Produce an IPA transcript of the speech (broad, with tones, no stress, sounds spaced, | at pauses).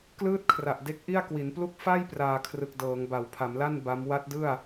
k l ɯː˦˥ t̚ kʰ r a˨˩ ʔ d e˦˥ k̚ ʔ i˥˩ a̯ k w i˩˦ n p l u˥˩ k̚ f a˥˩ j p r aː˨˩ kʰ r ɯ˨˩ k̚ d ɤː˩˦ ŋ b a˩˦ w pʰ a˩˦ m l a˥˩ n b a˦˥ m w a˦˥ t̚ d ɯ˥˩ a̯